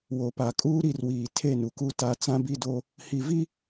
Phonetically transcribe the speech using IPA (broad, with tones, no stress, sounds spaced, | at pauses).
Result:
w o˨ p a˨ kʼ uː˦ ɾ i˦˨ r w iː˨ tʰ e˦˨ n u˨ k u˦ t a˦ t͡s ã˦ b i˦ d o˦ | h i˨ v i˦